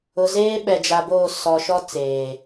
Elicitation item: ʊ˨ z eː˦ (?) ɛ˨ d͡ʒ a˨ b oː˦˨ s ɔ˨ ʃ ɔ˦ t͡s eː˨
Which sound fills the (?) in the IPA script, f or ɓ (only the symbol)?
ɓ